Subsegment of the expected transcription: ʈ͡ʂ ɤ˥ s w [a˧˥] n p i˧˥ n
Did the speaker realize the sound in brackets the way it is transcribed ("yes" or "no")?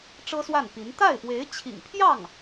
no